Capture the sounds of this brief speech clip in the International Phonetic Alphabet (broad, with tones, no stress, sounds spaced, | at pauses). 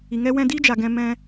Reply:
i˨ ŋ ɛ˦ w ɛ̃˧ d i˦ d͡ʒ a˨ ɡ ɛ̃˧ m ɛ̃˧